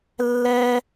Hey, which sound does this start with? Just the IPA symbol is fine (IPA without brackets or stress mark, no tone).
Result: lː